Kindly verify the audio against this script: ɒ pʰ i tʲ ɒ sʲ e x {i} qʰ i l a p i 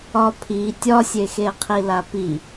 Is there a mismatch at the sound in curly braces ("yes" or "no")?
yes